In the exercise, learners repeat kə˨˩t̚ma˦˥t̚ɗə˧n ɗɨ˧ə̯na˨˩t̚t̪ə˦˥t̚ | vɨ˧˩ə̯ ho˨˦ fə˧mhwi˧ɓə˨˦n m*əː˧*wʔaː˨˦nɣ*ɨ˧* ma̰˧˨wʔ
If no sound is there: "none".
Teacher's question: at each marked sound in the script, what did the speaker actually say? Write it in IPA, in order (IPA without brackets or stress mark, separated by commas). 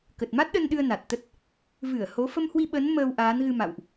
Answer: əː˧, ɨ˧